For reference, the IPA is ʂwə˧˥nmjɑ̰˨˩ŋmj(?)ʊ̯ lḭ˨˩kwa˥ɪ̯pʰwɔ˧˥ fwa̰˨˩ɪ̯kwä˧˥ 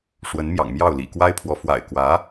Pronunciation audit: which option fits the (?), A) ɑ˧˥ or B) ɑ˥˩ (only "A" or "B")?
B